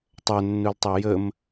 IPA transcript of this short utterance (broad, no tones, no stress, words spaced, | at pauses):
tˤœnːultˤe jəm